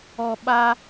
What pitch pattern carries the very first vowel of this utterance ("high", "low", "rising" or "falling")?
low